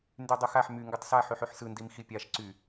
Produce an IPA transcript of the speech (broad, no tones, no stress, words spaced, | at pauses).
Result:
ndydˤɯxaħ my ŋɡɯtˤsa ħyħyħsɯ ndimxipʲaʃ ǀy